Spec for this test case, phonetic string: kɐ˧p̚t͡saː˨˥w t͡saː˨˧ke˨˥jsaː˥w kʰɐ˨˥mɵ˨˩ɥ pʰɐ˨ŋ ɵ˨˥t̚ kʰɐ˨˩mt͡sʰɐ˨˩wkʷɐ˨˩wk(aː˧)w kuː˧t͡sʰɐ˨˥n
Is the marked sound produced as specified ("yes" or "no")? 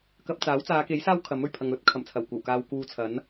yes